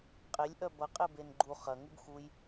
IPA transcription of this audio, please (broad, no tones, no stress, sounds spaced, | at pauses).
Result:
qʼ e lʲ ʔ œ b ɐ qʼ e b e n ɡ͡ǃ u χ ɐ ŋ u b x u j